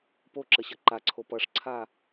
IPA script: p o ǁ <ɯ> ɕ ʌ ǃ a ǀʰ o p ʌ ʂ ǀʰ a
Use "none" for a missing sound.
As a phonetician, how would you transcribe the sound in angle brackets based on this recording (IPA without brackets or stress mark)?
ə